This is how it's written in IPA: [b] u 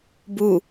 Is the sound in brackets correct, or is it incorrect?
correct